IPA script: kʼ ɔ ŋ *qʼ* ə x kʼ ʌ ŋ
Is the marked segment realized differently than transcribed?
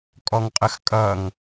no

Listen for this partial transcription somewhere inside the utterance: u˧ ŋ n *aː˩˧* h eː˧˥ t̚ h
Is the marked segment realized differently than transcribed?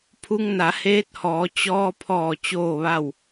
yes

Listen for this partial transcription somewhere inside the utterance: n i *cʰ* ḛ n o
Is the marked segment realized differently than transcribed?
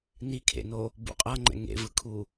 yes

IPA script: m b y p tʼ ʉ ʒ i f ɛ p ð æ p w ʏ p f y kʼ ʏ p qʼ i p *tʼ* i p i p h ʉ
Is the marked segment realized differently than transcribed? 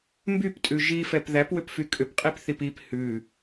yes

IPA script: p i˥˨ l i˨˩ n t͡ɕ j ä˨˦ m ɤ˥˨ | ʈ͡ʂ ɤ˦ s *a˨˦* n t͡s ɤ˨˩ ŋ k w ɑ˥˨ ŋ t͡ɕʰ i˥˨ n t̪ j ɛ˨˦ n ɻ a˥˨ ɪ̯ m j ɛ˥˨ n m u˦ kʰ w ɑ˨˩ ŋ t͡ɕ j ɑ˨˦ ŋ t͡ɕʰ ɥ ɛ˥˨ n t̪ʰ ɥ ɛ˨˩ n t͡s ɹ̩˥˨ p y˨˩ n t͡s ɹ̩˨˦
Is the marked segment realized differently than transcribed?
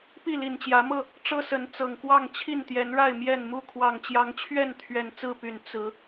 yes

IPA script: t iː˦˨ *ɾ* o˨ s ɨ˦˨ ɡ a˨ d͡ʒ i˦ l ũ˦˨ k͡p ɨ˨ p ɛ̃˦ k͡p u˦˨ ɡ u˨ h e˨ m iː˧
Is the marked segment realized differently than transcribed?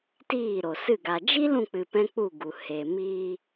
no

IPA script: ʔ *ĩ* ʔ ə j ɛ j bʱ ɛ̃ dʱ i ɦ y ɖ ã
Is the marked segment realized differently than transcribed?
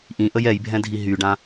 no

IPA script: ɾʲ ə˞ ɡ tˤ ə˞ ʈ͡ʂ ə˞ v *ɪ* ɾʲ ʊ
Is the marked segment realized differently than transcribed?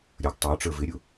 no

